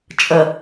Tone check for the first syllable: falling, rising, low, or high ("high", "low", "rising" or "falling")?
low